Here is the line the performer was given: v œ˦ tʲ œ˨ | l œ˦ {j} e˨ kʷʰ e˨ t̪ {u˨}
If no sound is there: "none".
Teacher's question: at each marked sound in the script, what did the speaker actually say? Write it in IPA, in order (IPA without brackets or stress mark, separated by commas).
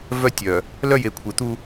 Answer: j, u˦